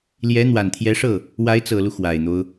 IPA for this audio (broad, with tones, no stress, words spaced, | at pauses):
ljɛ˧˥ n̪wa˨˩nt̪ʰjɛ˧˥ʂɤ˥˩ | wa˧˥ɪ̯t͡sɤ˨˩lu˦ xwa˨˩ɪ̯n̪o˦ʊ̯